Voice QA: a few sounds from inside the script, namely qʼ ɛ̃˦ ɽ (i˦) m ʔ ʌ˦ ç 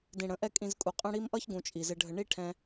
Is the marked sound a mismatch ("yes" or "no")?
no